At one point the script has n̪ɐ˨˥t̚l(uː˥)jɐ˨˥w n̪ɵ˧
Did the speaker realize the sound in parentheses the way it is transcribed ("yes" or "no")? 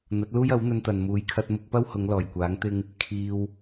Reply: yes